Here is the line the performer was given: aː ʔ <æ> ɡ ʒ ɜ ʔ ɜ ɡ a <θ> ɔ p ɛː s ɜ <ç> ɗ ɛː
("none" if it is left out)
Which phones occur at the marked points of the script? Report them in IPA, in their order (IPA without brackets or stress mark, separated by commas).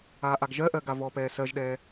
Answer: a, v, ʒ